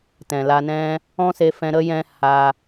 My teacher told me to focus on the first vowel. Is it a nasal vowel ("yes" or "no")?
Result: yes